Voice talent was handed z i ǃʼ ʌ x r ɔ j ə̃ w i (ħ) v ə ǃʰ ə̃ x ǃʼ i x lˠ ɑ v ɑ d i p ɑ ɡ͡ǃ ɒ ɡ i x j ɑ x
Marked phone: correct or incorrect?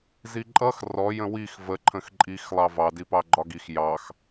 incorrect